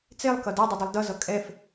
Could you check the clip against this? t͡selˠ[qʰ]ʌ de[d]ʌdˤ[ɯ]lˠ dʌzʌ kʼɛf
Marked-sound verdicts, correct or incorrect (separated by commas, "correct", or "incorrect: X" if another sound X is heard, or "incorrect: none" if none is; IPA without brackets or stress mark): incorrect: k, incorrect: dˤ, correct